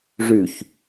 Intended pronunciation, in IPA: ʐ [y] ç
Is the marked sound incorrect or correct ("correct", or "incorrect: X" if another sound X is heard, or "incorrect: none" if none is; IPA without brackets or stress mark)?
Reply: correct